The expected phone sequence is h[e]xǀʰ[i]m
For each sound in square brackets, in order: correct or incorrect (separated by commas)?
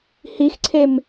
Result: incorrect, incorrect